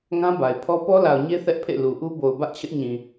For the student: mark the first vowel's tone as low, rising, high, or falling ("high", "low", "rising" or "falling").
high